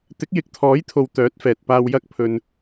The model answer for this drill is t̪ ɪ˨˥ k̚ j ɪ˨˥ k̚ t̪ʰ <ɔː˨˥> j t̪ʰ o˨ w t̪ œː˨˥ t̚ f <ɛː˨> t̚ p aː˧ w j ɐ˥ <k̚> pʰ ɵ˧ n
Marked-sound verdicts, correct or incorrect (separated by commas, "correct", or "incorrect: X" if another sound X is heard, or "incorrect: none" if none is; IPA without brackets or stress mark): correct, correct, correct